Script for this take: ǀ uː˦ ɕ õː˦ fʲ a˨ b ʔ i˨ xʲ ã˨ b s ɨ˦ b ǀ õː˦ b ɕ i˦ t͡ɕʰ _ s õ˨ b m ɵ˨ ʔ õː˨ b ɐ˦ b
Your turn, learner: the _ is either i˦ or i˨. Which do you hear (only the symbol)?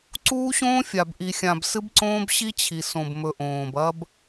i˨